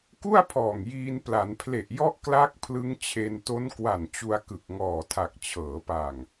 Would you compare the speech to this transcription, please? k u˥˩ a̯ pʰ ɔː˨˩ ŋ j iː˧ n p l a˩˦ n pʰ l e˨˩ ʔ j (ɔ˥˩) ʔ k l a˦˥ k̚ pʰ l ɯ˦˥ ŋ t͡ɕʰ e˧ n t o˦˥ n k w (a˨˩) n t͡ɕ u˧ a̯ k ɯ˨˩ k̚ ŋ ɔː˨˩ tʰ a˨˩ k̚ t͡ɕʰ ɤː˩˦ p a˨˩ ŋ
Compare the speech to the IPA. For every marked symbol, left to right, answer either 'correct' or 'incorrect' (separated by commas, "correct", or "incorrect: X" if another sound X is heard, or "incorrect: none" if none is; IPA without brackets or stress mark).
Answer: incorrect: ɔ˦˥, correct